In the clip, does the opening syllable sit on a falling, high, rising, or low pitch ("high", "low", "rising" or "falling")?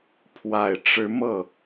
low